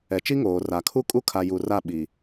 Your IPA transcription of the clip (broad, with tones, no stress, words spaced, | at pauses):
ɛ˨t͡ʃi˦ŋoː˨ ra˨kʰu˦ kʼu˦kʰa˨ ju˨ra˦˨ ɓi˨